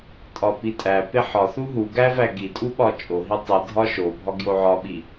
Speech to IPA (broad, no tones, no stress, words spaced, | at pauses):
tʼɒpitʼæpe ħɒθu ɦu ɡævæ ɡitʼu ɓɒt͡ʃʼoɦi tˤi dʱɒʃobʱɒ ɡjoʕɒɓi